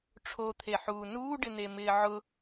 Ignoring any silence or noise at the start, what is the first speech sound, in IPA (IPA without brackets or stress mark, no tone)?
ʈ͡ʂʰ